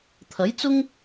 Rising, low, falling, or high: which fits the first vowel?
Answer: rising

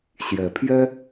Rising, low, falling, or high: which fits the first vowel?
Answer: rising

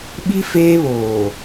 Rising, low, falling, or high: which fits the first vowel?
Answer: high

